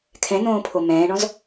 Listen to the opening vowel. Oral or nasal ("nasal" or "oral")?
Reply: nasal